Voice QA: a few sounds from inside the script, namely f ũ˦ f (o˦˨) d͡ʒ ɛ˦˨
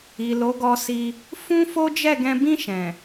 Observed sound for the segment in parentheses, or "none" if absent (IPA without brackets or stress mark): o˦